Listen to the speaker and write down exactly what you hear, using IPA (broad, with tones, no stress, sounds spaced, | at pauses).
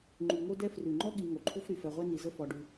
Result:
ŋ͡ǃ ʉ˩ ŋ o˦ d ɛ˦ f r ʉ˩ ŋ͡ǃ ɔ˥ ɠ i˨ ŋ o˩ ǃʰ u˥ f ɾ y˩ f ɛ˨ ʁʷ ɛ˥ n i˨ z ə˥ f ɔ˨ ɖ ʉ˨